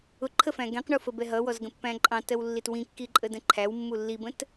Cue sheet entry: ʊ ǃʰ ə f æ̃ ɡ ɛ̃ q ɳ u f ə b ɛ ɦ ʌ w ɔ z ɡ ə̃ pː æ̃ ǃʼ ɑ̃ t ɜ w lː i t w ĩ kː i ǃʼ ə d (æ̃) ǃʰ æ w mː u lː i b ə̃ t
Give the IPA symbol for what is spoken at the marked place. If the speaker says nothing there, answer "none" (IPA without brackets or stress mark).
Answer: ə̃